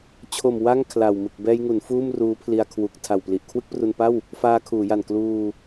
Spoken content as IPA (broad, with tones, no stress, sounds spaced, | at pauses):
t͡ɕʰ o˨˩ m w a˥˩ ŋ kʰ l a˨˩ w m ɯ˨˩ k̚ b ɛː˧ j ŋ u˩˦ n f uː˥˩ m r uː˦˥ pʰ l i˧ a̯ kʰ w u˨˩ k̚ tʰ a˨˩ w p l i˨˩ ʔ kʰ w ɯ˥˩ k̚ p r u˧ n p a˥˩ w | f aː˧ kʰ uː˩˦ j a˨˩ n k l uː˧